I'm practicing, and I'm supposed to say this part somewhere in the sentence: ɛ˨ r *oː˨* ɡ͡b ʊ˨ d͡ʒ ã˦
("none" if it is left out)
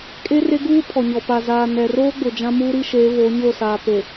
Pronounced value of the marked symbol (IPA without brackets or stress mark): oː˦